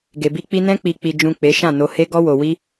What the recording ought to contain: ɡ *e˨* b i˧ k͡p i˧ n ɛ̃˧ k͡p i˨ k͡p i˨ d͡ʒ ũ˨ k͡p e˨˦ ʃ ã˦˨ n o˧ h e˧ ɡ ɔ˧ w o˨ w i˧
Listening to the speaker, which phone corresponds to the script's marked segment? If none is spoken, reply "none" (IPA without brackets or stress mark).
e˨